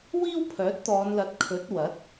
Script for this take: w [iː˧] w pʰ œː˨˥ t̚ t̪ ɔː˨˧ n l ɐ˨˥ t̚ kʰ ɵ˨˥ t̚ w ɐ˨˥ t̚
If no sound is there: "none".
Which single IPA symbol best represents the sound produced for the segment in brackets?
iː˥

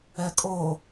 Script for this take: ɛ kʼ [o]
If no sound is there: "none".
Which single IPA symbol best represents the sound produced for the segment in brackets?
o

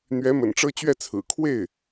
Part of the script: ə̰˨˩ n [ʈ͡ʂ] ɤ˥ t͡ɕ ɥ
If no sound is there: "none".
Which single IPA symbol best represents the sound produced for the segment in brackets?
ʈ͡ʂ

